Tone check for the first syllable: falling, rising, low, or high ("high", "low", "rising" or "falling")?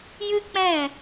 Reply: high